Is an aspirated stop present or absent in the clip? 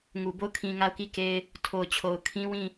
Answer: present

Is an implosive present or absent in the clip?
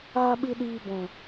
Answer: present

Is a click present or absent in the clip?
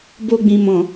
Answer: absent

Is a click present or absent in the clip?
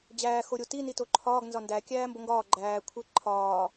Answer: present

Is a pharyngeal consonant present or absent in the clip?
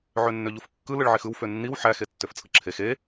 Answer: present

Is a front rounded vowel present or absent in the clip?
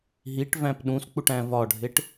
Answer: absent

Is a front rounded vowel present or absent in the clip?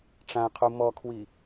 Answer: absent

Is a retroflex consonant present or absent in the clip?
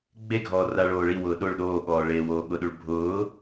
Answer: present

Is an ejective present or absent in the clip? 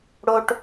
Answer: absent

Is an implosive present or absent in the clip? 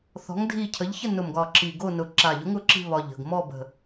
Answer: absent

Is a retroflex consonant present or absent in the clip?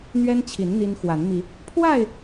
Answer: absent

